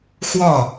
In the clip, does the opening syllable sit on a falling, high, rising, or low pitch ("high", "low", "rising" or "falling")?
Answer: falling